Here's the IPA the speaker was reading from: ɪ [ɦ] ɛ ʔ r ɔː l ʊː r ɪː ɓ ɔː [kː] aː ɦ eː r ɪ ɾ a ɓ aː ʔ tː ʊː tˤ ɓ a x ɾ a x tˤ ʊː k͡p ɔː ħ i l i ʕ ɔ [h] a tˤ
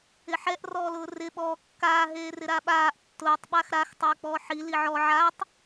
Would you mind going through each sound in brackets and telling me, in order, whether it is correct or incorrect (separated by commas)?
incorrect, correct, incorrect